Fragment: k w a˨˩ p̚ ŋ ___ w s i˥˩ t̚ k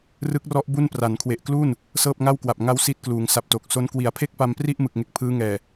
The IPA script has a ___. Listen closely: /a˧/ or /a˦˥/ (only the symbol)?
a˦˥